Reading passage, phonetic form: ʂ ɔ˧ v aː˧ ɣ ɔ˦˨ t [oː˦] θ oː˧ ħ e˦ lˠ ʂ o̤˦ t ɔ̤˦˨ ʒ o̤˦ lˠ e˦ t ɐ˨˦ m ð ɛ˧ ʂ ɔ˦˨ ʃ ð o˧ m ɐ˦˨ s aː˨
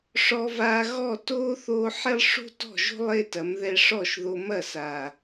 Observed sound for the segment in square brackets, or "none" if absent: oː˦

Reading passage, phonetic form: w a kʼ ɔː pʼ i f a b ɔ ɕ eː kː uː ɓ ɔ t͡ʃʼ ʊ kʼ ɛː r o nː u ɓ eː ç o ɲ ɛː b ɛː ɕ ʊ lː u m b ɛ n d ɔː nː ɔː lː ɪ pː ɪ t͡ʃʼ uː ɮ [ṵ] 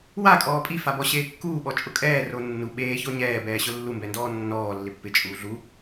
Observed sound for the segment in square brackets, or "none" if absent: u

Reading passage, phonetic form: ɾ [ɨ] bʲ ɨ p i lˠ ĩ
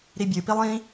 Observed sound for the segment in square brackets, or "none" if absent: i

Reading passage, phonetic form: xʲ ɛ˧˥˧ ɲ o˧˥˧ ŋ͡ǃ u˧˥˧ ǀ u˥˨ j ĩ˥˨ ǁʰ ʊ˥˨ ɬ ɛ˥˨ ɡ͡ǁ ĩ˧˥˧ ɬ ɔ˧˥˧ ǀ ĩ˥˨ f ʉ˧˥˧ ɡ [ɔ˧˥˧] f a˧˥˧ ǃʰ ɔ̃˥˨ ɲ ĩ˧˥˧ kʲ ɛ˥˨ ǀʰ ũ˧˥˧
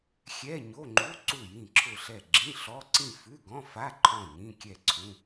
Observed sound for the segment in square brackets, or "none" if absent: ɔ̃˧˥˧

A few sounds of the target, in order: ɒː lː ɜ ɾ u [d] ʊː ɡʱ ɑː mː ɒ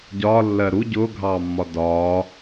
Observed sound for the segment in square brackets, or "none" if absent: ɟ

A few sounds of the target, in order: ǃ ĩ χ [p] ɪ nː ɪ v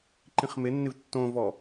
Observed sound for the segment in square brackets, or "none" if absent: m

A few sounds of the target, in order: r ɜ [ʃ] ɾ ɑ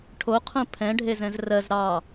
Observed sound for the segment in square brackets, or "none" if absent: z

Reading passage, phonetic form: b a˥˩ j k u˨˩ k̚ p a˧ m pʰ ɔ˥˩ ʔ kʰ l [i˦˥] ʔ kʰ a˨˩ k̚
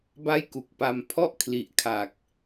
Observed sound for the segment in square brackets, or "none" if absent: i˨˩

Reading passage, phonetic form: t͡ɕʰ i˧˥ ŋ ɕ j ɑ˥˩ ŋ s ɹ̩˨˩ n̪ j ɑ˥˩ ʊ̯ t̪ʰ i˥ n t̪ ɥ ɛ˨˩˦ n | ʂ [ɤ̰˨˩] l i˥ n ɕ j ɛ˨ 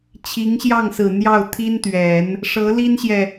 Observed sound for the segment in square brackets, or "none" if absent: ɤ˧˥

